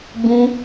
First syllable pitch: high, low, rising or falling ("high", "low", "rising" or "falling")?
high